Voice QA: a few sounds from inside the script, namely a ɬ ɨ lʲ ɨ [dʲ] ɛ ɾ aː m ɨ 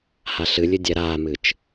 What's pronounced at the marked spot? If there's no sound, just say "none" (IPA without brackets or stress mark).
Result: dʲ